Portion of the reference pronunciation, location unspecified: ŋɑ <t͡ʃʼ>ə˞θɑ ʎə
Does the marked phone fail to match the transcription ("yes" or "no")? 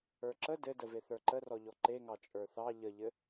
no